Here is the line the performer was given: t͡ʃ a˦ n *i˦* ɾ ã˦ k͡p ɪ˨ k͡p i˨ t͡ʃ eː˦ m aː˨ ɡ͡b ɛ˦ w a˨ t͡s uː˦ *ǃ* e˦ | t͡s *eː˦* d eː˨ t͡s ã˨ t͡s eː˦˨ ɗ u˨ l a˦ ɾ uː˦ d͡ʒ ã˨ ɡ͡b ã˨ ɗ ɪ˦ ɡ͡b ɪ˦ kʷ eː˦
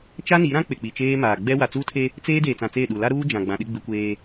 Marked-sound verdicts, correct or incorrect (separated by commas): incorrect, incorrect, correct